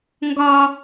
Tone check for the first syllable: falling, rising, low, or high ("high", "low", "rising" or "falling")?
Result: high